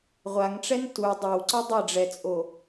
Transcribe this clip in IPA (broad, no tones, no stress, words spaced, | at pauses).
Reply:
ʁʷaŋʈ͡ʂɛn tu dˤɛwǀʌ dˤeɖ͡ʐɛt͡sʼo